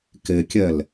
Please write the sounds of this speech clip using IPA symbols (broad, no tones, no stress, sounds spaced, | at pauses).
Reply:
k e kʲ ɛ l